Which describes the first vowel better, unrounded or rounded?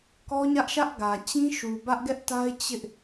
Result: rounded